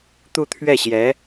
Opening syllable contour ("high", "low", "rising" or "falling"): falling